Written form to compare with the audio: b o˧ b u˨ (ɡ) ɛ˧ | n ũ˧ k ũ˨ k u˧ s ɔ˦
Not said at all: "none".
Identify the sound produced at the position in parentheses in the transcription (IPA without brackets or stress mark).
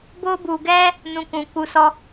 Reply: ɡ